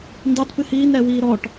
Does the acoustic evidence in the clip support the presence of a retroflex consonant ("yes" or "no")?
yes